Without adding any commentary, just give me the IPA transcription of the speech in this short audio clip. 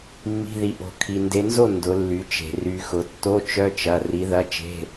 mː i̤˩˧˩ ð i˩ ʔ o̤˩ kʰ i˩ n d e˩˧ n z o˥˩ n d ʊ˩˧ lː y˩˧ t͡ʃ e̤˩ r y˩˧ x ʊ˩˧ tː o˧˥˧ t͡ʃ œ˧˥˧ t͡ʃ ɐ˩˧˩ r i˨˥ ð ɐ˧˥˧ t͡ʃ e̤˧˥˧

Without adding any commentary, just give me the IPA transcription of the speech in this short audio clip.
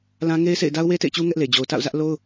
l ã˦ ŋ e˦ ɪ̯ s ḛ˦˨ ɪ̯ d a˦ ʊ̯ w e˦ t ḛ˦˨ ɪ̯ t͡ɕ u˦ ŋ ɛ˦ ʔ l e˨ d͡ʑ o˨ ʊ̯ t a̰˦˨ ʊ̯ z ä˦ ʔ l o˦ ʊ̯

